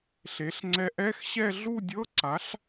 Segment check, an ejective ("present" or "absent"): absent